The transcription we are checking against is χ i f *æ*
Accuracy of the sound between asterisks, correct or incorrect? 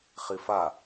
incorrect